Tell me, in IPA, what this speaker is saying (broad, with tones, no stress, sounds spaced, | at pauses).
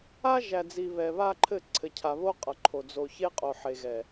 a˦ ʒ æ˨ d͡z i˨ β ɛ˨ β a˦ ǃʰ ɘ˦˨ ǀʰ ɘ˨ cʰ a˨ β o˦ qʼ ʌ˨ ǃʰ o˨ d͡z o˨ ç e˦ qʼ o˨ ħ e˨ ɣ ɛ˨